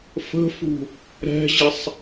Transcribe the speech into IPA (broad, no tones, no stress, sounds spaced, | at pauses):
f ə̤ f ṳ | ɾ ɛ̤ ʑ i sˤ